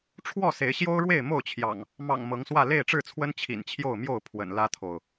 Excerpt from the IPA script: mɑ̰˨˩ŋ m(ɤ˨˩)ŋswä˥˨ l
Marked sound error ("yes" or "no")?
yes